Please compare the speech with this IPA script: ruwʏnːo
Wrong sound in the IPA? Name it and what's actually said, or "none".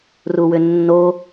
none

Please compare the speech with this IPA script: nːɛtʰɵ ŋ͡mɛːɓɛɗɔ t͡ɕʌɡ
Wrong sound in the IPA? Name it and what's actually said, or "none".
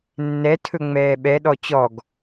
ʌ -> ɔ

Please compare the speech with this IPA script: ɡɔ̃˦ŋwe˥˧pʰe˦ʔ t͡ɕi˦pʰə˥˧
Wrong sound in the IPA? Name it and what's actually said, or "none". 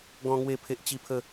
none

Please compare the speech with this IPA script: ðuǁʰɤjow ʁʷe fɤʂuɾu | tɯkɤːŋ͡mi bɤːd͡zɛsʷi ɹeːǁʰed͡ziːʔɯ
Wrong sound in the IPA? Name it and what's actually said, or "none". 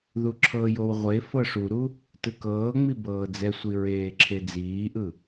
none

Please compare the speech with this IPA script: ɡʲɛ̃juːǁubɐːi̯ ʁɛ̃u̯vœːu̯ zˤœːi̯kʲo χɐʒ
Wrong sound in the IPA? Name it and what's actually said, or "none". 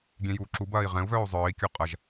χ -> qʼ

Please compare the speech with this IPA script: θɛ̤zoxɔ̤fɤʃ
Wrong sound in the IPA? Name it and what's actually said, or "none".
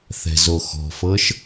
none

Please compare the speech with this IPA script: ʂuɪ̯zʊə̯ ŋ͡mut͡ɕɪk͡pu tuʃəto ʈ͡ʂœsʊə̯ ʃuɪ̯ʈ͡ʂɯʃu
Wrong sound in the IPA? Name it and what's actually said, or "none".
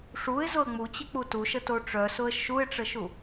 ɯ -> ə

